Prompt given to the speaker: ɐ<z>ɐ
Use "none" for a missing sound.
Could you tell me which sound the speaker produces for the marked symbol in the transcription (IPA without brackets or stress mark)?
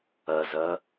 z